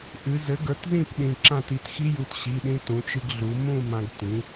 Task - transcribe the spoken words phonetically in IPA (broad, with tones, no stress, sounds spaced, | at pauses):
ʔ ɨ˩˧ z ɘ˩˥ ɡ ə˞˩˥ t z ĩ˥˧ p ɗ ĩ˩˧˩ ǁ ã˥˧ t i˩˥ t x i˦˥ j u˩˧˩ t ɕ i˩˧˩ ɗ ĩ˧ t ũ˩˧ t͡ʃ ɨ˧ ɡ ɮ u˩˧ m ũ˥˧ m ã˧ ɡ t ĩ˩˥